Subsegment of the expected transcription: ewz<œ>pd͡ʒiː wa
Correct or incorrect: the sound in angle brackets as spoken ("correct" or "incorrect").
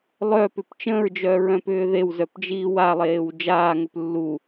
correct